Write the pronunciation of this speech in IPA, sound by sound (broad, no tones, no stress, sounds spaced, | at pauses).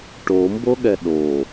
ʈ o m b o ɠ ɛ ɗ o